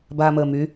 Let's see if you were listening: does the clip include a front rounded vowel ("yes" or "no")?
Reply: yes